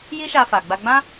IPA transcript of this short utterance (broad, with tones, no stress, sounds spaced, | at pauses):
j i˦ ʃ a˧ f a˨ ɡ͡b a˧ ɡ͡b ã˦